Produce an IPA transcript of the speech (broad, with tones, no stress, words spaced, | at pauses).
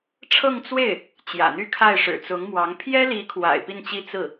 ʈ͡ʂʰɤ˥˧ŋt͡swe˥˩ɪ̯ | t͡ɕjä̰˨˩n̪y˥kʰa˥˩ɪ̯ ʂɻ̩˨˩t͡sʊ˧˥ŋmwɑ˧˥ŋ pʰjɛ˥li˧˥kʰwa̰˨˩ɪ̯ pi˥˩nt͡ɕi˥ t͡sɹ̩˥˩